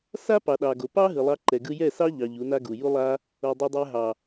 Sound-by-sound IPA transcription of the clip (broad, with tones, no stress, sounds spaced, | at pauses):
s a˦ p ɑ˨ ɗ ɑ˨ ɡ o˨ p ɑ˦ ɦ ɯ˨ lˠ ɑ˧ ǃ ɛ˨ ɡ ɯ˧ j ɛ˦˨ s ɑ˦ ʎ ɑ˧ ʎ u˨˦ n a˦ ɡ u˨ j u˦ lˠ a˦ | o˨ dˤ o˧ dˤ ɛ˧ ɦ ɑ˨